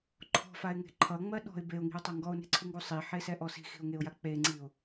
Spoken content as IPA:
ǃʰ ɔ̤ f a ɪ̯ ŋ e̤ ǃʰ ʌ ŋ͡m ɜ ɗ ɔ̤ ɪ̯ b e ʊ̯ ŋ i̤ ʊ̯ tˤ a ŋ ɡ ɔ ʊ̯ n e̤ ǀʰ u ŋ ɡ u sˤ i ħ e s ɛ ʔ ɔ s i̤ x i̤ ʊ̯ ŋ e ʊ̯ j a k͡p e ŋ͡ǀ i ʊ̯

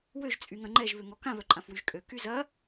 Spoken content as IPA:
w ø ʒ t͡sʼ y ŋ ɐ̃ ŋ͡ǃ ɛ ʒ β ø ŋ ɔ k ã β œ ǃʼ ã f w y ʒ kʼ ø k y z ɐ

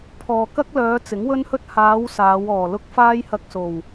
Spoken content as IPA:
pʰ ɔː˨ k ɐ˥ k̚ l œː˨˧ t͡s ɪ˨˥ ŋ w ɵ˥ n h ɵ˥ t̚ h aː˨˧ w s aː˨˧ w ɔː˨˩ l ʊ˥ k̚ f aː˥ j h ɐ˧ k̚ s o˨˩ w

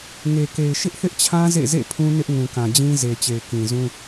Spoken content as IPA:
ŋ e˨ k e˨ ɪ̯ ʃ ɪ˦ ʔ θ ɪ˦ ʔ t͡ɕʰ ã˦ z ḛ˦˨ z ḛ˦˨ pʰ ũ˦ n ɪ˦ ʔ ŋ ũ˨ k ã˨ d͡ʑ ĩ˦ z e˨ t͡ɕ e˨ ɪ̯ k ĩ˨ z ũ˦

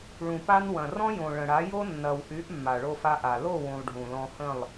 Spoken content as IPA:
ɭ ũ˨ p a˧ n w ɐ̃˨ r ɔ̃˦ j õ˨ ɭ ə̃˨ ɽ a˨˦ j o˦ nː ɐ˨ w ʔ y˨˦ ʔ mː a˨ ɭ o˧ f a˧ ʔ a˨ l o˦˨ w ũ˨ lˠ ɖʱ ũ˨ l ɔ̃˧ h ə̃˦˨ lˠ

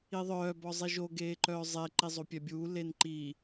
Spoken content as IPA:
i ðˤ œː b ɔ zˤ i ʒ o ɡ eː ǃ œː zˤ e ǃ i zˤ o pʲ ɛ bʲ uː l e n ǃ i

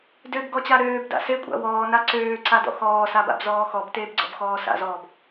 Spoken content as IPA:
d ø b ɡ ɔ t͡ɕ a ɾ øː b d a̰ s e kʷʼ a̰ w ɔː n a ǀ øː ǀ a d ɔ̰ x ɔː s a b a̰ b z ɔː x ɔ b t eː b ɡ͡ǀ ɔ̰ b x ɔː s a̰ z ɔː b

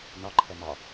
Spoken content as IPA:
n ɒ ǃʰ ɛ m ɒ

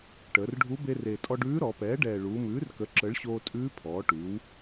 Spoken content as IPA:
ʈ əː˩˧ r ɖʱ u˧˥ b e˧ r e˨˩ tʼ ɔ˧ ɖ ʉː˧˥ ɾ ɔ˩˧ p ɛː˩˥ ɖ ɛː˨˩ ɭ uː˩˧ m ʉː˩˥ r k ə˩˥ ǁ ə˩˥ ɭ ɕ oː˧ tʼ ʉː˧˥ pʰ ɔː˩˧ ʈ ʉː˩˧ w

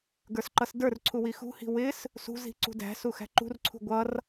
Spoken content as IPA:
ɡ ə˞ s ǃ ʌ s d ə˞ r ǀʰ u w i x ṳ h i̤ w ɪ s | s ṳ z i̤ ǀ ṳ d æ̤ s u x æ̤ ǃ ṳ r ǀʰ ṳ ɡʷ ʌ r

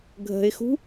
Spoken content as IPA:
ɡʱ ə̤ ɪ̯ x ṳ

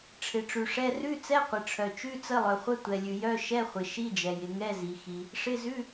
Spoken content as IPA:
ʈ͡ʂʰ ɪ˩ ʈ͡ʂ ʉ˩ ʂ ɛ˧˥˧ r ʉ˧˥˧ t͡s ɛ˧˥˧ qʷ ɪ˩ ʈ͡ʂʰ œ˩ t͡ʃ ʉ˧˥˧ t͡s ə˧˥˧ lˠ œ˩ χʷ ə˧˥˧ tʷ ɛ˩ lʲ ʉ˩ j œ˧˥˧ ʃ ɛ˧˥˧ χʷ ɪ˩ ʃ i˧˥˧ d͡ʒ ɛ˩ j ɪ˩ ŋ ɛ˧˥˧ z i˩ x i˩ | ʂ ɪ˧˥˧ z ʉ˧˥˧

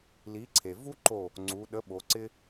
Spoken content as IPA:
l i˩˥ ǀʰ e˩ v u˥ ǃ o˧˩ | ŋ͡ǀ u˩˧ ɗ ə˩˥ ɓ o˩˧ ǀ ɪ˥

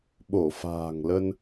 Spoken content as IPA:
ɓ o˧˩ f a̤ː˨˩ ŋ l ə˧ n

